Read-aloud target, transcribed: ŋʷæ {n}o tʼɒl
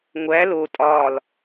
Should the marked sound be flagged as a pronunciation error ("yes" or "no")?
yes